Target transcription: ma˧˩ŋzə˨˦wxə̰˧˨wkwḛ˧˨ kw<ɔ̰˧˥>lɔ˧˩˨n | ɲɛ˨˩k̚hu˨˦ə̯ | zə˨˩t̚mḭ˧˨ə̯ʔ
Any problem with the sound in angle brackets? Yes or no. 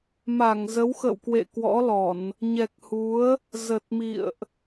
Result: no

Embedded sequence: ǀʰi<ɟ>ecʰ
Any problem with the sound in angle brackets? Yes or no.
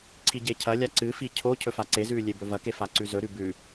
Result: no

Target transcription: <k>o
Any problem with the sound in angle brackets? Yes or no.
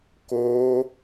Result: no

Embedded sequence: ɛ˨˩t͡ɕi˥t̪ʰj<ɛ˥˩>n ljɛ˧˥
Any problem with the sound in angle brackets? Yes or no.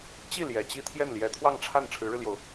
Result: no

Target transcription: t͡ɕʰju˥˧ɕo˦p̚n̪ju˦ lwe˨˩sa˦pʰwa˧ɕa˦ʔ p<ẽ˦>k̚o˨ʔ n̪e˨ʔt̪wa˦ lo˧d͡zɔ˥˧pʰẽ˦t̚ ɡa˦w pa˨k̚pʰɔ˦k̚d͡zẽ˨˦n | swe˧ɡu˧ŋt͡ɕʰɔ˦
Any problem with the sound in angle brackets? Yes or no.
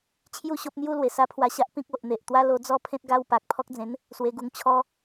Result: yes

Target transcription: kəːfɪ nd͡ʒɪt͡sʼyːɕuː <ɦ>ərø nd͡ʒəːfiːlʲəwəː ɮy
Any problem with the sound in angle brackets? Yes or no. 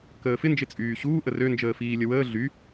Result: yes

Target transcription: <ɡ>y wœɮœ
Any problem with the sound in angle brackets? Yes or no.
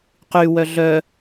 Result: yes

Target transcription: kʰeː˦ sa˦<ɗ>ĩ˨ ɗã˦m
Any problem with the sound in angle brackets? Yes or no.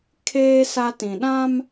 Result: yes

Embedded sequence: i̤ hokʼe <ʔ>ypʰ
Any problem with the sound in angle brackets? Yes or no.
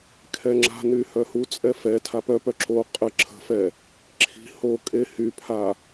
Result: yes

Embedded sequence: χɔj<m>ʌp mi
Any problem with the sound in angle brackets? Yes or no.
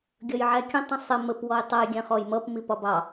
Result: no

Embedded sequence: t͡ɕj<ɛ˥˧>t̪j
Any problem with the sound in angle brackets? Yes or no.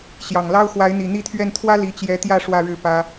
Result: yes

